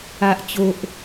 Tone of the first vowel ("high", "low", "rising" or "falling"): low